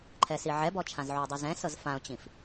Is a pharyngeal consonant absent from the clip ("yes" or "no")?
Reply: no